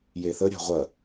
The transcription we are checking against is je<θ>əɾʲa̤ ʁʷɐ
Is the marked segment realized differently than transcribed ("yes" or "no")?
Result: no